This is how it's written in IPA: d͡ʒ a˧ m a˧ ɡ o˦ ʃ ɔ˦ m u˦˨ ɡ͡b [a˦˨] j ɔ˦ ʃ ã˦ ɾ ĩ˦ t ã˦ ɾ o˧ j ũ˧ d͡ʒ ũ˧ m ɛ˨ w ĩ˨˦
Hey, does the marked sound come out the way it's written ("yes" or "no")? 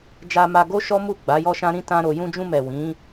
no